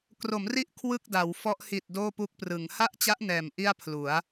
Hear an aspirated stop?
yes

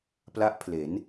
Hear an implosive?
no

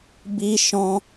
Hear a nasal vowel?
yes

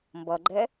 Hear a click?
yes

